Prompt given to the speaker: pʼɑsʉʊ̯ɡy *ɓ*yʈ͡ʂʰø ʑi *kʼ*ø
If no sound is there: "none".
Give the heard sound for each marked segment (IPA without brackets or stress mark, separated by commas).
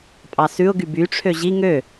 b, ŋ